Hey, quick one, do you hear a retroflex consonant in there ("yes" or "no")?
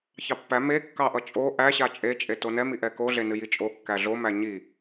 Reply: no